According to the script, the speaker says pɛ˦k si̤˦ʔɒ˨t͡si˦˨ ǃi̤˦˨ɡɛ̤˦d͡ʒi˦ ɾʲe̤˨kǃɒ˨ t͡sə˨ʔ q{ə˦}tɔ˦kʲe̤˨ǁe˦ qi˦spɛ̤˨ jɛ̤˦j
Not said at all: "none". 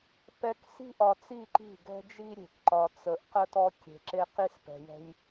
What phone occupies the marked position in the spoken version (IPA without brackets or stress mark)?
ə˦